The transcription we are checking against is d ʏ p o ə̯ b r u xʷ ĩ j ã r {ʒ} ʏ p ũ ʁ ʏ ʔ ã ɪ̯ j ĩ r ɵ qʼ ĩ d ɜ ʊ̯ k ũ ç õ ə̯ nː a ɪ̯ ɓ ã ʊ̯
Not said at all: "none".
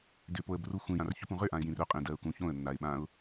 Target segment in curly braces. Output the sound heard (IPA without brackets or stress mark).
ç